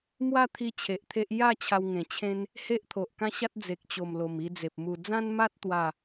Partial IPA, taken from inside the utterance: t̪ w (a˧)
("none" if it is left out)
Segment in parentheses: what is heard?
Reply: a˥˧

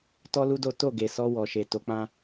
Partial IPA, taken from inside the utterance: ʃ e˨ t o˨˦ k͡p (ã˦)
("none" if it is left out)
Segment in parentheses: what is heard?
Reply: ã˦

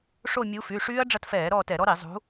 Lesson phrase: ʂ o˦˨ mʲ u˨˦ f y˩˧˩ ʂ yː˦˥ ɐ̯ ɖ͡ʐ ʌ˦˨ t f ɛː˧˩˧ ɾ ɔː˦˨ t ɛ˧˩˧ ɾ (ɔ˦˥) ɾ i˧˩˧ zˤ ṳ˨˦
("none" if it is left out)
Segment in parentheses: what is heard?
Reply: ɔ˦˥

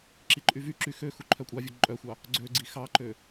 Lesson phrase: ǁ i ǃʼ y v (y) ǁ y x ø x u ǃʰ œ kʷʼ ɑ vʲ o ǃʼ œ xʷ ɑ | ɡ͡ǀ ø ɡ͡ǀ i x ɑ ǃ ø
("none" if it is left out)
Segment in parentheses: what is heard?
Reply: y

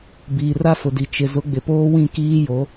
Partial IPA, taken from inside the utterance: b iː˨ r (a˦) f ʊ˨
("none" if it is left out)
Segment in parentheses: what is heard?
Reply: a˦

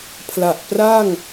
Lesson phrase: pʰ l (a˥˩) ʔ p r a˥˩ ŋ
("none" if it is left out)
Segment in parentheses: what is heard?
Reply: a˨˩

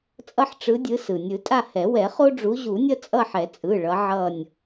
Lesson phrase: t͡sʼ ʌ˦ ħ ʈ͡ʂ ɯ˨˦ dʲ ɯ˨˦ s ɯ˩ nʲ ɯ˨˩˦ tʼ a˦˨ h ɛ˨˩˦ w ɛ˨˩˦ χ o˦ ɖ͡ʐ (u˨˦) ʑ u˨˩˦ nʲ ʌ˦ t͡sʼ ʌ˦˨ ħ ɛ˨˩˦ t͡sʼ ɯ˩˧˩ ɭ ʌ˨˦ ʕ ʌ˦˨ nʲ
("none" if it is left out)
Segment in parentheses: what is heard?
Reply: u˨˦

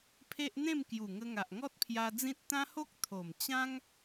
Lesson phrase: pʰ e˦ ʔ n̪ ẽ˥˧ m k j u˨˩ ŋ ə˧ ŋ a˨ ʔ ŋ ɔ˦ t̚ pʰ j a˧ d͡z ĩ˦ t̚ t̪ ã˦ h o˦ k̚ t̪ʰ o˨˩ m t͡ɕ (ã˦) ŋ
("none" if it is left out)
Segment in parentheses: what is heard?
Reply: ã˦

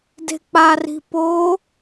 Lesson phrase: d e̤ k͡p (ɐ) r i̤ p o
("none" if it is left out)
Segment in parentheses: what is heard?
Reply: a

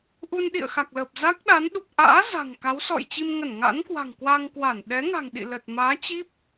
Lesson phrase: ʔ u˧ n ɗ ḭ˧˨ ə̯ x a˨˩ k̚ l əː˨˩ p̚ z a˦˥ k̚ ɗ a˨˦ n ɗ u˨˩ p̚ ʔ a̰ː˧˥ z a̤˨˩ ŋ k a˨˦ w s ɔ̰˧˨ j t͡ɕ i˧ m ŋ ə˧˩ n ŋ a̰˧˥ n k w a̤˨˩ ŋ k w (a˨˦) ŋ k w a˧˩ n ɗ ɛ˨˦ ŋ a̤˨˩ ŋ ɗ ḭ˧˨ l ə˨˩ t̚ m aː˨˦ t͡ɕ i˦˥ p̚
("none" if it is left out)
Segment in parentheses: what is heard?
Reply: a˧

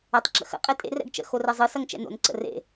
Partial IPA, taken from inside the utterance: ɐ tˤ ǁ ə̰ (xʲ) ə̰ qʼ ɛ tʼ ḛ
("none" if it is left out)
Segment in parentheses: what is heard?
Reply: x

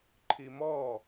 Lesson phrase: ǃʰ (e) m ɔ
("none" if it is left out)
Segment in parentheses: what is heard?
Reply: i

